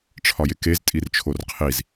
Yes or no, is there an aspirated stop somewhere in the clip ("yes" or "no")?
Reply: yes